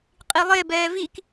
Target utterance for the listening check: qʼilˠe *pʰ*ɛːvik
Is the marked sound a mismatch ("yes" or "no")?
yes